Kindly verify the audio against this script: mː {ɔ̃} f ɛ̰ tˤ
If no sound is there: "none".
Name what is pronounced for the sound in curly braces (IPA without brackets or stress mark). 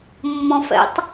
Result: ɔ̃